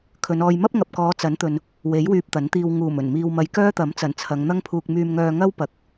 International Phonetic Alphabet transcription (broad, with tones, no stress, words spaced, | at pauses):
kʰɵ˨˧nɔː˧j mɐ˥p̚ŋɐ˨p̚kɔː˨˧ t͡sɐ˨˥nt̪ɵ˨n | we˨˥j wyː˧p̚t̪ɐ˨˥nt̪iː˧w ŋuː˨˩mɵ˨˩nmiː˨wmɐ˨˧j kœː˥t̪ɐ˨˥mt͡sɐ˨˩n t͡sʰɐ˨˧ŋn̪ɐ˥ŋpʰuː˧k̚ myː˧mŋœː˧ ŋɐ˥wpɐ˨k̚